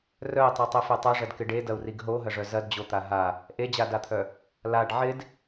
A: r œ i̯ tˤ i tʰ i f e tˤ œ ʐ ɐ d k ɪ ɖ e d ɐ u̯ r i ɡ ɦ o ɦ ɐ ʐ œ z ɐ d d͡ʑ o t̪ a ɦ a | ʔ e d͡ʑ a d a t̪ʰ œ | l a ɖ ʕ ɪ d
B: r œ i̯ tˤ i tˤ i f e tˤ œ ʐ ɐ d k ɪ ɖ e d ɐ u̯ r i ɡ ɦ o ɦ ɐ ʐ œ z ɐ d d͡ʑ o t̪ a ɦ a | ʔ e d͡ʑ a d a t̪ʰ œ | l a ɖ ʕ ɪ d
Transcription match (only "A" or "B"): B